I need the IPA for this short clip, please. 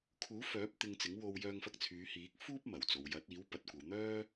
kʰ uː˨˥ f œː˨˥ p̚ t̪ ɪ˧ ŋ t͡s ɪ˨˥ ŋ w o˧ w j œː˧ ŋ f ɐ˧ k̚ t͡sʰ yː˨˧ h iː˨˥ k̚ f uː˥ p̚ m ɐ˨˩ w t͡s o˨ w j ɐ˨˥ t̚ iː˨˥ w p ɐ˨ t̚ kʷ ɐ˨ w n̪ œː˥

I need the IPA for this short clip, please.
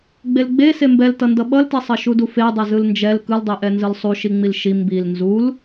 ɡ͡b e l ɡ͡b e s e m b ɛ l t ʌ n d ʌ ɓ ʌ l t e sˤ ʌ ʃ u d u f e dˤ ɛ z ɯ l n d͡ʒ ɛ l k ɯ l dˤ i ʔ ɛ n z ɯ l sˤ u ʃ i ŋ͡m i l ʃ i m b i l n z u l

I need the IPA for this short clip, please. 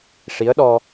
ʂ i˧˥ ə̯ ɗ ɔ˧

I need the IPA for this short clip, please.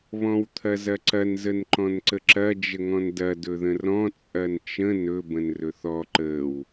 β ɔ̃ w t̪ʰ ɐ z ɐ ǀ ɐ n z ə n ǃ ɔ̃ n ǀ ə ǁ ɐ d͡ʒ ə ŋ ɔ̃ n d ɐ d ɵ ð ə̃ r ɔ̃ t͡sʼ ɐ n t͡ʃ ə̃ n ɵ b ə̃ n r ɵ θ ɔ ǃ ə w

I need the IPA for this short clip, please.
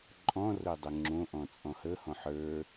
ǃʼ ɔ̃ r o dˤ ə ŋ͡ǁ õ ʔ ɔ̃ t͡sʼ ɔ̃ h ə h ɔ̃ ħ ə˞

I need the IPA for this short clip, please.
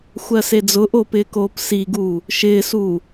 xʷ ɜ s e d͡z ʊ ʔ oː p ɪː k oː p s i ɡ uː | ʃ ɪː s uː

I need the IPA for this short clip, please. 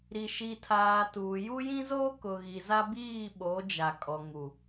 ɾ i˨ ʃ i˨ tʰ aː˨ t uː˨ j u˦ j ĩ˦ z oː˦ k ʊ˨ ɣ i˨ z a˦ b iː˦˨ ɓ o˨˦ d͡ʒ a˨ kʼ ɔ˨ ŋ u˨

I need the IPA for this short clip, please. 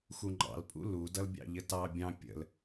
x u ŋ͡ǃ ɑ̰ l pʼ ṵ l u d ʌ l bʲ ɑ̰ ʎ ə t ɑ bʲ ɑ̃ pʲ ə̰ l

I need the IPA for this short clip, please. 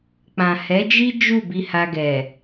k͡p ã˨ h ɛ˨˦ d͡ʒ i˦ d͡ʒ u˦˨ b i˧ h a˧ ɡ ɛ˨

